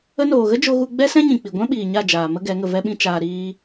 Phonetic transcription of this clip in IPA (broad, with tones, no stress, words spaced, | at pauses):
ə˧noː˨ɣə˦ d͡ʒo˧ ɣu˧ɡ͡bɛ˦sɛ̃˦ɲĩ˨ k͡pi˨ɡʷɛ̃˦ ɓiː˨ɲa˦˨ d͡ʒaː˨ mə˦ɡɛ˨˦ ŋə˨vɛ˧ɓĩ˧ t͡ʃaː˧ɾiː˦